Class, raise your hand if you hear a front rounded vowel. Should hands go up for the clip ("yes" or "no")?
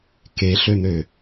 yes